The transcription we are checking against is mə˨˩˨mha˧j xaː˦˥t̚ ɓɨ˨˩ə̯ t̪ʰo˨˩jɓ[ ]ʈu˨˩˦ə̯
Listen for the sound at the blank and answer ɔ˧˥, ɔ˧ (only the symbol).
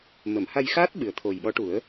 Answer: ɔ˧˥